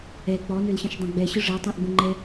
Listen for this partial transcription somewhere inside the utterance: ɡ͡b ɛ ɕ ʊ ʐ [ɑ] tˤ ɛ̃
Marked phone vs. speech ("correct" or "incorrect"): incorrect